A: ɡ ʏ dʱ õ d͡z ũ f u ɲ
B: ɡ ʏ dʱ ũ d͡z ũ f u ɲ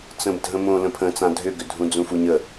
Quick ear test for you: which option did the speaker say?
B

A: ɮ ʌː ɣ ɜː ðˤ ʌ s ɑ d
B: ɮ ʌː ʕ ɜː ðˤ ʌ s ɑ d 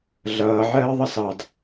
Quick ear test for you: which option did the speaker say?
B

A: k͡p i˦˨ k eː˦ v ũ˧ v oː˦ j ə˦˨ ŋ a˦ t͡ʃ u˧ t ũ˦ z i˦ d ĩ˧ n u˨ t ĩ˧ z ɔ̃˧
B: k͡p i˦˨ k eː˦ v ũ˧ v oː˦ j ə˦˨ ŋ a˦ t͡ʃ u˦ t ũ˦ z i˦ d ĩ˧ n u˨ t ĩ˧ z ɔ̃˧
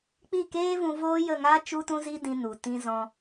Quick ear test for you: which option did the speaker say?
B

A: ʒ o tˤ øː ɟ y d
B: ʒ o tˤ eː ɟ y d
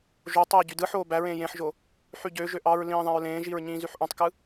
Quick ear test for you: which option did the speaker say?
B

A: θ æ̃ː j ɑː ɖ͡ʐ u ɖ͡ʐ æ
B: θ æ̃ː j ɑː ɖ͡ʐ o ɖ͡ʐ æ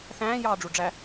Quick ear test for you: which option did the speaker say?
A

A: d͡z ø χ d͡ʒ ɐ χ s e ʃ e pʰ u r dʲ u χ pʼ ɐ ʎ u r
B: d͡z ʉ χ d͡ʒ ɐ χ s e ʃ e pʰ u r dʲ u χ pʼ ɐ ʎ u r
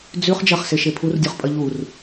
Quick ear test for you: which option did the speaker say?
B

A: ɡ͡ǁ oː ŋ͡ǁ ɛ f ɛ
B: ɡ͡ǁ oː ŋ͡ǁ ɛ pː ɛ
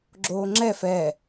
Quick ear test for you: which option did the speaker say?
A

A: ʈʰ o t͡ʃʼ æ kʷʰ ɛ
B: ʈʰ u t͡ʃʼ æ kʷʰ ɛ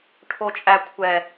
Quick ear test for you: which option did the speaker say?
A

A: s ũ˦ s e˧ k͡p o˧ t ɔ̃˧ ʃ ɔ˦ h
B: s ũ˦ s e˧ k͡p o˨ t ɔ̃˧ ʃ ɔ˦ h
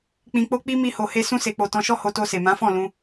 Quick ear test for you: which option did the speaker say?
A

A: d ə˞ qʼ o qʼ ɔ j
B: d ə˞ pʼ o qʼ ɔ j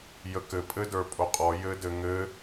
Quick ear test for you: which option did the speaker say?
B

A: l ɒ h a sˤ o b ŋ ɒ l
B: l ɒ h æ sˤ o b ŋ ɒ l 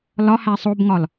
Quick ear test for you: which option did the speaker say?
B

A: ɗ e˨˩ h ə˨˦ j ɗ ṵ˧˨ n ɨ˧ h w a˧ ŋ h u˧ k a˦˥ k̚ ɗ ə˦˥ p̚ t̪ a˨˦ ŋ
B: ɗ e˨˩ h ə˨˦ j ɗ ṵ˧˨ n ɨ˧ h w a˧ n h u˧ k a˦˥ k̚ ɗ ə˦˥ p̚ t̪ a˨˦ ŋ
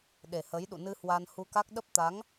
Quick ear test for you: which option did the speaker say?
B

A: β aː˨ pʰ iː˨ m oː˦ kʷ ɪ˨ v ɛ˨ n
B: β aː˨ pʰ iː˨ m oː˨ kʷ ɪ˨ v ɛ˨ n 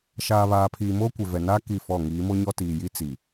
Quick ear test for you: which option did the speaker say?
A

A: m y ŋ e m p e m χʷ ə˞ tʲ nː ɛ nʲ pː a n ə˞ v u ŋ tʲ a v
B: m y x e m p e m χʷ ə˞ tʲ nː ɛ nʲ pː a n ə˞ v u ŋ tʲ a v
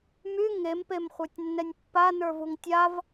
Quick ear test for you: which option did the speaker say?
A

